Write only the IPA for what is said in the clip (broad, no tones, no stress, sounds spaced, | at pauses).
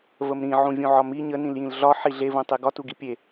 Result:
v ə m ɾ ĩ ʕ ũ vʲ ũ ʕ ɒ m i ɲ ə n ĩ l j ĩ l ɮ ɒ ħ i ɮ e v ũ tˤ e ɡ ɒ t u ɡ i pʲ e